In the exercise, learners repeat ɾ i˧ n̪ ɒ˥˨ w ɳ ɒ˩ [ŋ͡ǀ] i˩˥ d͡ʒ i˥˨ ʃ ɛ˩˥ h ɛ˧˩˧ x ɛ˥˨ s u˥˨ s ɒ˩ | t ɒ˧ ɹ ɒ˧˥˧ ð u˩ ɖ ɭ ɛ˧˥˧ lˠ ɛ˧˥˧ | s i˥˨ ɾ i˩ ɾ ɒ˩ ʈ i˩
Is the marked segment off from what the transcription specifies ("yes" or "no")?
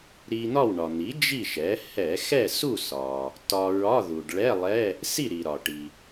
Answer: yes